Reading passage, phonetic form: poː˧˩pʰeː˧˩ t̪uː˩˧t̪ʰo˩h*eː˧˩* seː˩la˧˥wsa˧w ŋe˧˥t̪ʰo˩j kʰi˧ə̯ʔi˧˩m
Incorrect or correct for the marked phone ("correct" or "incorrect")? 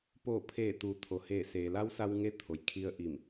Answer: correct